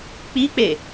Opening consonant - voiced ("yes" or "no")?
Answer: no